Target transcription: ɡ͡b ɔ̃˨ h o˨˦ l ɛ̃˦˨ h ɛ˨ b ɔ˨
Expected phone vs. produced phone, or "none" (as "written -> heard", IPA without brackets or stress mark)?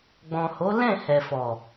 b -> f